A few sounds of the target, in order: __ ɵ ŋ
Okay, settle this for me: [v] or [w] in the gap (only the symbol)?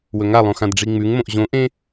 w